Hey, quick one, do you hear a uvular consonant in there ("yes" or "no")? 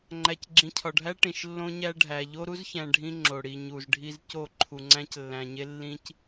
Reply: no